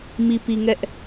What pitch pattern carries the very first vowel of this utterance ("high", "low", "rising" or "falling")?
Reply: low